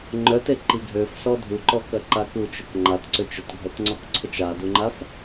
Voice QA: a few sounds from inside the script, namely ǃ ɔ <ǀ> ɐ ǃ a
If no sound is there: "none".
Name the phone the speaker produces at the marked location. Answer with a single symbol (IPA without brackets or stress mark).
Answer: k